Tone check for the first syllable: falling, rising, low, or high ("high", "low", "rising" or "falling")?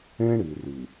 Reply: high